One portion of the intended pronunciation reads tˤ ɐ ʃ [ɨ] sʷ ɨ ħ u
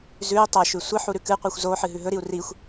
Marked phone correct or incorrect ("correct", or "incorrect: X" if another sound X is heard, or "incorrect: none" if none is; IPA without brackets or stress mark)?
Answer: incorrect: ʉ